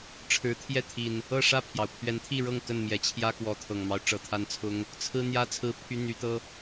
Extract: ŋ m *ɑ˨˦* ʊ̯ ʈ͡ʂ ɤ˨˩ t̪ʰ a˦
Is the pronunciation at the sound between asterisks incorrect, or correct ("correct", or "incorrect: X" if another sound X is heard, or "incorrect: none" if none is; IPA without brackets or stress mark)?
incorrect: ɑ˦